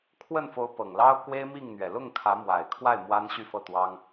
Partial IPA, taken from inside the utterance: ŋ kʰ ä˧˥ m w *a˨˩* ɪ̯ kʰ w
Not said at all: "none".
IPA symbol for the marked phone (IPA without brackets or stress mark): a˨˩